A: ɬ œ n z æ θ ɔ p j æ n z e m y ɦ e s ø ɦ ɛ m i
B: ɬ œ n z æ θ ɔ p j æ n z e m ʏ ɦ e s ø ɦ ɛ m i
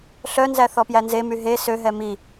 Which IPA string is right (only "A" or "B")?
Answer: A